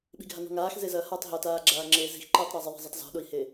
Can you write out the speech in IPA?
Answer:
ɓ i̤ ɡʱ a n ɔ̤ ŋ aː x z e z ɐː h a tˤ ɦ ɐ t aː ɡ͡ǁ aː ŋ͡ǁ eː z i̤ x ǃ iː tˤ ɾ a zˤ ɘ ðˤ i̤ zˤ ɘ tˤ z ɔ̤ ɗ o i̯ h eː

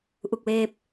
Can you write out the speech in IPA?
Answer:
ʔ u˥˩ k̚ w eː˥˩ p̚

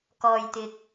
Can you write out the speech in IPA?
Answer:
k ɔː˧ j t̪ ɪ˧ k̚

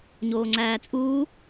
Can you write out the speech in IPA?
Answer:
ɲ oː ŋ͡ǀ æː t͡sʼ uː

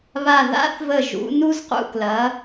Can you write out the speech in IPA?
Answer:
β a˧˩ ð a̰˥ θ v ə˧˩ ʒ ṵ˩˧ n u˧ z q ṵ˧˩ k l ɐ˩˧

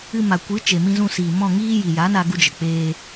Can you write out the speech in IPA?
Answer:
ɨ˧ m a˨ kʷ ɨ˨˦ t͡ʃ e˨ m ĩ˧ z ũ˧ s iː˨ m ɔ̃˦˨ ŋ iː˦ j i˨ j a˨˦ n a˧ ɡ u˧ d͡ʒ ə˨ k͡p eː˧

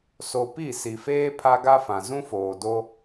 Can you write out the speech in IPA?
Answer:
s o˨ p i˦˨ s i˨ f eː˦ pʰ a˦ ɡ a˦ f ã˨ z ũ˦ f oː˨ d o˦

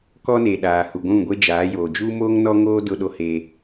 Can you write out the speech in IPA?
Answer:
k ɔ˦ n e˨ ɗ aː˨ h u˨ ɡʷ ũ˦˨ ɡʷ e˦ d͡ʒ aː˨˦ j oː˨ d͡ʒ uː˦ m oː˦ ŋ n ɔ˦ ŋ oː˦ d ʊ˦ ɗ o˦ h e˦

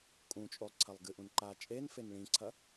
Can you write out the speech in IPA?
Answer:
kʼ ũ t͡ʃʼ o lˠ ǀʰ ɐ lˠ ɡ ɨ ʔ ũ n ǃ a t͡ʃʼ e n f e n ɭ ĩ ǀʰ ɐ

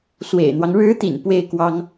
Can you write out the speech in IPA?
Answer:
s w ḛ˨˩ ɪ̯ n̪ w ɑ˦ ŋ ɻ ɻ̩˧˥ t̪ ḭ˨˩ n p w e˥˩ ɪ̯ k w ɑ˥ ŋ

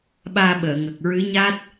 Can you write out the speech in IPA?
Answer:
ɓ aː˧ ɓ əː˨˩˨ ŋ ə˨˩ k̚ ɹ ɨ˧˥ ɲ a˦˥ t̚

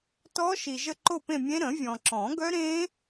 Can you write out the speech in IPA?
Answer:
t ɔ˦˥ ʃ i˨ ʒ ə˥˧ ǃ o˥˧ p ẽ˥˧ mʲ ẽ˦˥ ɾ ə̃˨˩˦ vʲ ɔ̃˨ ǁ ɔ̃˨˩˦ ɡ œ˦˥ ɾ ẽ˦˥

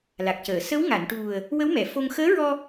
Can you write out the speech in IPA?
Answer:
l a˨˩ k̚ c əː˨˩˨ s ə˧˥ w ŋ a˨˩˨ n ʈ u˨˩ ə̯ | w ə˧˥ w m ɛ˨˩˨ f o˧ ŋ x əː˧˥ ɹ ɔ˧

